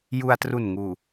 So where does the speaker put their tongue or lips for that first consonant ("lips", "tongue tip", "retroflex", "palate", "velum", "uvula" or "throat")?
palate